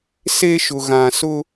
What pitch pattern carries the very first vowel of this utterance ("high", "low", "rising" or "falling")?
high